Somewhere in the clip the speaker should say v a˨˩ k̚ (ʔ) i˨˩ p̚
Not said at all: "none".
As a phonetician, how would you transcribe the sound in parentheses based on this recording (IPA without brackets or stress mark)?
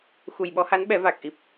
ʔ